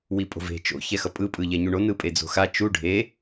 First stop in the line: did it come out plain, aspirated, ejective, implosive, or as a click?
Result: ejective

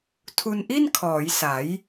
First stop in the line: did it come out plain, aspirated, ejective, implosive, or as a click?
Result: aspirated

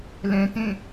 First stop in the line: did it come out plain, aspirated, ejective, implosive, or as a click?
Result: plain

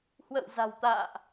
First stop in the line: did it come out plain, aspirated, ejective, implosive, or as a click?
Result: plain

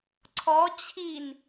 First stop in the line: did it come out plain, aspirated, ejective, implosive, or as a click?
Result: click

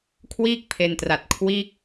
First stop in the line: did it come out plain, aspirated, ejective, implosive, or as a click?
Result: aspirated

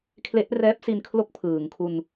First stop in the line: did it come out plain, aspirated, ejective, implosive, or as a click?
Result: aspirated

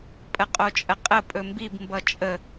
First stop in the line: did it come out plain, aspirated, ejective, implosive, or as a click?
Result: ejective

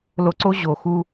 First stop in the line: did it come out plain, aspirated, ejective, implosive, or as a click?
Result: click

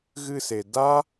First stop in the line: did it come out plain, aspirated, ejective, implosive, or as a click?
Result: plain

